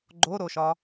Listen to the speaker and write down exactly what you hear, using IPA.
ɡ͡ǃ o ɾ o ʃ ɒ

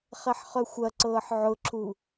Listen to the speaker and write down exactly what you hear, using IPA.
χ ɛ ħ χ œ xʷ ɐ ǀ ɤː ħ ʕ ʊ ǁʰ u

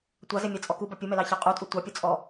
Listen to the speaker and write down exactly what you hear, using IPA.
tʷ ɑ z e mʲ ɑ t͡sʼ ɔ k u b ɑ pʲ u m ɛ l ɑ ç ɑ qʼ u tʼ u tʷ ɑ pʲ ɔ t͡sʼ ɔ

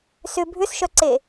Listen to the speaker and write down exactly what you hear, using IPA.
s ʏ bʱ ʏ s ʃ œ ǀ e

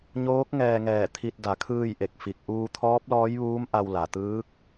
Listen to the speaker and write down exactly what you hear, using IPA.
ɲ oː˧˥ k̚ ŋ ɛː˧ ŋ ɛː˧˩ t̪ʰ i˧ t̚ d a˩˧ kʰ ɯː˥˨ j ʔ e˧˩ k̚ f i˧˩ k̚ ʔ uː˧ t̪ʰ ɔː˧˥ p̚ l ɔː˧˥ j ʋ uː˧˥ m ʔ a˧ w l a˩ t̪ ɯː˧˥ k̚

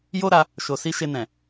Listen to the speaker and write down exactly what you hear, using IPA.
j o˦ ɾ a˧ | ʃ o˨ s i˧ ʃ e˧ n ɛ̃˨

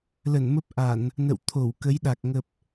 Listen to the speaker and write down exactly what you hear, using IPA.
l ə˧˩ n m ə˦˥ p̚ ʔ a˧˩˨ n | n ə̰˧˨ w t̪ʰ o˧˩ w k ə˨˦ j ɗ a˨˩ k̚ ŋ ə˨˩ p̚

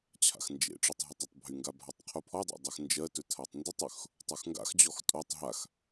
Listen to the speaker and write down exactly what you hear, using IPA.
t͡ɕʰ a̰ x n d͡ʒ ḛ ʈ͡ʂ y tˤ ɦ ɔ tˤ ɜ tˤ bʱ y ŋ ɡ a bʱ a tˤ qʰ u pʰ ɔ dˤ a̰ dˤ ɜ x n d͡ʒ ɜ t ɵ tʰ a tˤ n d u tˤ ɵ x | tˤ u x ŋ ɡ a̰ x d͡ʑ ɔ x tʼ o tˤ ɦ a x

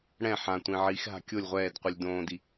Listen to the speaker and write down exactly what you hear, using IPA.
ɽ ɛ̃ ħ ã tʷ ĩ ʕ i x ɦ a̤ kʲ o lʲ ʁʷ ɛː d qʷ i lʲ d õː d i

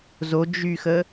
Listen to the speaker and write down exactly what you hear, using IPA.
z o d͡ʒ y x ə

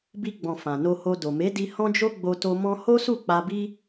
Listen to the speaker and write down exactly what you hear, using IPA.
b i˧ ɡ͡b ɔ̃˨ f ã˨ n o˧ h o˧ d o˨ m e˨˦ d i˧ h ɔ̃˦ d͡ʒ o˦ ɡ͡b o˧ t o˧ m ɔ̃˦ h o˦ s u˦˨ k͡p a˧ b i˦

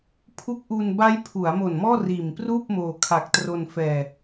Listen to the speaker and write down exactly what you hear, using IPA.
pʰ u˦˥ k̚ ʔ u˧ n b a˦˥ j pʰ u˩˦ a̯ m o˨˩ n m ɔː˥˩ r iː˨˩ m p r uː˥˩ p̚ m oː˧ kʰ a˨˩ k̚ t r o˧ n f ɛː˧

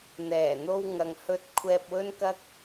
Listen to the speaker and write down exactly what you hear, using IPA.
n̪ ɛː˨˩ n̪ o˧ w ŋ ɐ˨ ŋ h ɵ˧ t̚ kʷʰ ɛː˧ p̚ w ɵ˥ n k ɐ˥ k̚

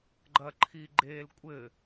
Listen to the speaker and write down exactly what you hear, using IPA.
ɡ͡ǃ ɐ ǃʰ i ɡ͡ǃ e l kʷʼ ɘ

